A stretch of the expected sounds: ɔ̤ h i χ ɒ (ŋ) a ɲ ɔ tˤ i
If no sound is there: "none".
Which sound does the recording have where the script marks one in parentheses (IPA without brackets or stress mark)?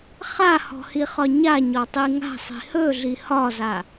ɲ